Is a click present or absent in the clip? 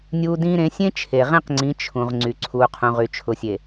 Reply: present